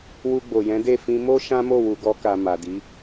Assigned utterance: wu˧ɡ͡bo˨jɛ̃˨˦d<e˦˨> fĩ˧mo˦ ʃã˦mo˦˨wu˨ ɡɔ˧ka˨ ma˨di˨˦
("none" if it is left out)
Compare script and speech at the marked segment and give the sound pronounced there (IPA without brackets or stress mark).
e˦˨